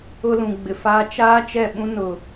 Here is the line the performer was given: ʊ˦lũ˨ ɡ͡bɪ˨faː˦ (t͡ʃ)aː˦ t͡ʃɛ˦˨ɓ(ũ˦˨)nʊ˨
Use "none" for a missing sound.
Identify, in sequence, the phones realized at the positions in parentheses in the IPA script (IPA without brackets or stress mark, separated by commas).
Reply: t͡ʃ, ũ˦